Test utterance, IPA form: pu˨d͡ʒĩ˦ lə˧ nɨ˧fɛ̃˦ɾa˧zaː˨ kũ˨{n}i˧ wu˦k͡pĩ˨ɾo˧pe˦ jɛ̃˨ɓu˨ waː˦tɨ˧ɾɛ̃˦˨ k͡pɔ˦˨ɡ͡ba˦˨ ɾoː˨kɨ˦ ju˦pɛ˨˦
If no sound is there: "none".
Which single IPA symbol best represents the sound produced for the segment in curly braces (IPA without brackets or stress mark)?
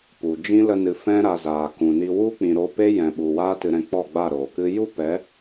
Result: n